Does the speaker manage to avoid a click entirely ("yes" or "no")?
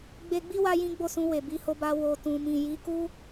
yes